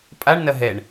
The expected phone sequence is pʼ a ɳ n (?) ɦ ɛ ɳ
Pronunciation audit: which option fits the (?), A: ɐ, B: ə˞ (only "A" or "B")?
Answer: A